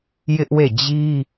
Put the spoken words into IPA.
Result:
j ɪ˦ ʔ w e˦˨ d͡ʑ i˦

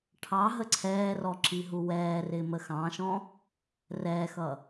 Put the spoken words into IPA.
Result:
ʈʰ ɑ ɦ ə ǀʰ ɛː r ɔ ǁ i ɦ u w ɛː r ɪː m ə x ɑ̃ ʃ ɔ̃ | r ɛː x ʌ

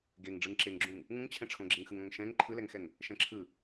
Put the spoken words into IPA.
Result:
ɡ e ŋ ɖ͡ʐ ɯ ŋ ǁ e ŋ ɡ͡ǁ ũ ŋ | ŋ ũ ŋ t͡ɕʰ ɛ̃ ʈ͡ʂʰ õ ɡ͡ǁ e ŋ x ɯ ŋ õ ŋ ʃ ɛ̃ ŋ ǃʰ ɯ l ɛ ŋ x ɛ ŋ | ʃ ɛ̃ ǁʰ ɯ

